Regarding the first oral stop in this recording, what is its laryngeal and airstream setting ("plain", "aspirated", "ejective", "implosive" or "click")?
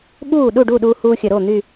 implosive